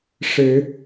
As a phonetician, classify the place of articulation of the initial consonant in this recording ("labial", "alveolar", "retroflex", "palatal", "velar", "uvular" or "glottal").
retroflex